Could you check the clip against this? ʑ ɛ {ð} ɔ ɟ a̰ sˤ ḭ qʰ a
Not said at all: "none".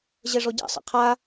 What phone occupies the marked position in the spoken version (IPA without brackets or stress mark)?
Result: ʐ